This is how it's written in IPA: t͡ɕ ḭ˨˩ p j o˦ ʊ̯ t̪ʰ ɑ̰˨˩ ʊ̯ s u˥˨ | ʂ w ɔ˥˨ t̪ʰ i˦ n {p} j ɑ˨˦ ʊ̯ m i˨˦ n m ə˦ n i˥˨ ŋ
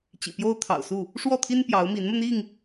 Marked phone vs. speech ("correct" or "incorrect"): correct